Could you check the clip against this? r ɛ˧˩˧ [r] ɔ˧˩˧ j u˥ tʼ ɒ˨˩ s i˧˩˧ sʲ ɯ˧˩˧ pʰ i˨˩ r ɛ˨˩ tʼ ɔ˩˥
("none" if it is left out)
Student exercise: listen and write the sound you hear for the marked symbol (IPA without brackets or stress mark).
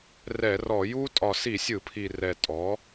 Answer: r